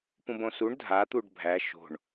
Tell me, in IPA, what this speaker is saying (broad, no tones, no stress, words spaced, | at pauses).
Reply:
pũbõsuɳ dʱat̪uɖ bʱæ ʃo̤ɳ